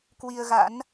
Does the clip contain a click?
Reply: no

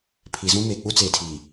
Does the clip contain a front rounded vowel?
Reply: no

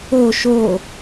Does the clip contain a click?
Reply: no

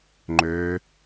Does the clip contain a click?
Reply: yes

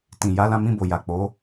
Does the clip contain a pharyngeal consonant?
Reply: no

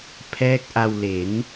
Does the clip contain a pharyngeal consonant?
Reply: no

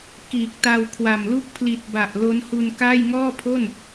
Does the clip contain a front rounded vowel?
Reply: no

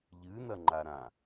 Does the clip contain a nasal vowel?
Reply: yes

